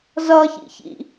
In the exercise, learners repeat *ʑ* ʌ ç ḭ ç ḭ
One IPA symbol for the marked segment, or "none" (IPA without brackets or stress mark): z